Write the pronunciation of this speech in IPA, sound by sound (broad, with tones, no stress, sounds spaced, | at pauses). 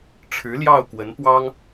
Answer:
ʈ͡ʂʰ ɻ̩˧˥ l j ɑ˥˩ ʊ̯ k w ə˧˥ n p w ɑ˥ ŋ